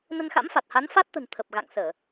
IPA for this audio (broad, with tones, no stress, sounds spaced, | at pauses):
n ə˧ n x a̰˧˥ m f a˨˩ t̚ h a˨˦ n f a˦˥ t̚ t̪ ə̤˨˩ n t̪ʰ ə˨˩ p̚ ɣ a̰˧˨ ŋ s əː˧˩˨